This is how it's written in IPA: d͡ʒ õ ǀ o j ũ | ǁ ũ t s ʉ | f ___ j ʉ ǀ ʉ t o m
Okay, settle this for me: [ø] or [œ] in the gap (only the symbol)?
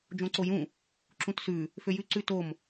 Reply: ø